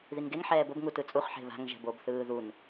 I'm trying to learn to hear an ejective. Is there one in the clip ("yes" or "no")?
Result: yes